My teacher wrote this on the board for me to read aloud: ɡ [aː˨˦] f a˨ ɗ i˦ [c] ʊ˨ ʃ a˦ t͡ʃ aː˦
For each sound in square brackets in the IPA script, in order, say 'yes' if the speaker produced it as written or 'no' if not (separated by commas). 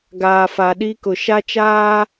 no, no